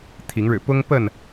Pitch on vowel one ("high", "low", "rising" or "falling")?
rising